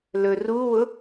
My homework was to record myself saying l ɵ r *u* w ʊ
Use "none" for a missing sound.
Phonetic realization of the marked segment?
u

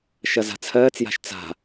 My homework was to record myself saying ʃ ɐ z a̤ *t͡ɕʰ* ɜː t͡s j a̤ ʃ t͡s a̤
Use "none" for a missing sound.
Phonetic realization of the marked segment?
t͡sʰ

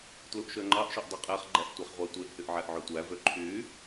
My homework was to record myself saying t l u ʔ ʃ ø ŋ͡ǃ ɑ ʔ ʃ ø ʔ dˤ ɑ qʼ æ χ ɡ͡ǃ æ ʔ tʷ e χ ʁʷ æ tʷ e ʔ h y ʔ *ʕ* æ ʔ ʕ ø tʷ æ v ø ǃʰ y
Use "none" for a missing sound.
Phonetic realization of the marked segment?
ʕ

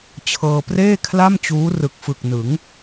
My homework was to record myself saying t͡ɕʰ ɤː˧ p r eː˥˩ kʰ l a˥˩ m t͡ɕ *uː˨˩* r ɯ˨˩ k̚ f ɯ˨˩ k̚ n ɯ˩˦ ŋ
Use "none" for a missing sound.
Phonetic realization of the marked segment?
uː˦˥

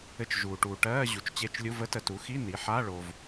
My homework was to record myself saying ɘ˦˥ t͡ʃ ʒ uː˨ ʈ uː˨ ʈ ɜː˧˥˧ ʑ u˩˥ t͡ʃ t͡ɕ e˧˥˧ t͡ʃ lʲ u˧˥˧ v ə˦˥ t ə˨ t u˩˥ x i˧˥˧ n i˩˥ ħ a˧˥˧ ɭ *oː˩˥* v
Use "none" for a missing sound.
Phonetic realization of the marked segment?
oː˨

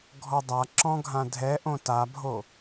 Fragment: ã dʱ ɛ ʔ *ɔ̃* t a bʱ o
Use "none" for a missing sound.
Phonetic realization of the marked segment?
õ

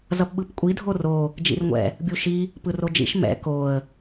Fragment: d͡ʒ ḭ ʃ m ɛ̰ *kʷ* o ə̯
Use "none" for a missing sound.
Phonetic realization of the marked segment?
k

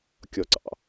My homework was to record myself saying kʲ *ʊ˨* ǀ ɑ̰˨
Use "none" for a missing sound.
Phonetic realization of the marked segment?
ɔ˨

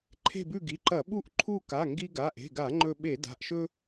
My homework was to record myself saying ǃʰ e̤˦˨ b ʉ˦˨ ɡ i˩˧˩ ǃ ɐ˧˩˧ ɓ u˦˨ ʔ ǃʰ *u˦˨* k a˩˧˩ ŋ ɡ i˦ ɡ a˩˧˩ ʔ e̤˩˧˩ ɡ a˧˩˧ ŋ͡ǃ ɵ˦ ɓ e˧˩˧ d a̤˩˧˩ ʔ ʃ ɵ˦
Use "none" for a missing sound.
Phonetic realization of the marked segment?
u˦˨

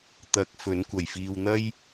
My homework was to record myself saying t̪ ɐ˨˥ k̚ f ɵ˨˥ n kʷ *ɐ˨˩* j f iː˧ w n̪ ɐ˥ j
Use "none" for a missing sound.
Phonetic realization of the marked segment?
ɐ˨˩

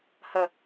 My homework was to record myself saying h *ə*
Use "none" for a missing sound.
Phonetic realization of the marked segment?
ə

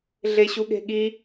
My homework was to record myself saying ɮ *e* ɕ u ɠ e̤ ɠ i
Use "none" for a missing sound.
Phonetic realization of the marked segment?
e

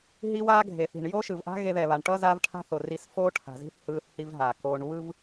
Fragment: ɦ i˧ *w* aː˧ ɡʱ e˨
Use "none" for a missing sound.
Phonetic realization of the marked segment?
w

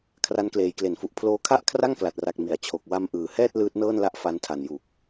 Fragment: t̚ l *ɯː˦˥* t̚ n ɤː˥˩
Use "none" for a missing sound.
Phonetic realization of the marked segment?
ɯː˦˥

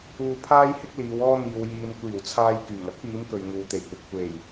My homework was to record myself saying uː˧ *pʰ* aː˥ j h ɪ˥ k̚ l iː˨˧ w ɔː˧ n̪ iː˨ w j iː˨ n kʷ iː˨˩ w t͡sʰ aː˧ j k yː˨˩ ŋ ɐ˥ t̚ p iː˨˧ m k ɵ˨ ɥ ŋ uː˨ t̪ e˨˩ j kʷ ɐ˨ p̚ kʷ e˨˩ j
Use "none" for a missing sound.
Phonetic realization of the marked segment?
pʰ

